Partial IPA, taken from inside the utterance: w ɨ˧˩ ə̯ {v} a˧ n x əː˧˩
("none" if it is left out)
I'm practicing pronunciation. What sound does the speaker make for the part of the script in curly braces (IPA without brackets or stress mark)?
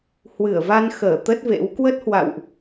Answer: v